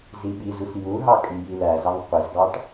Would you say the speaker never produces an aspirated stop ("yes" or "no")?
yes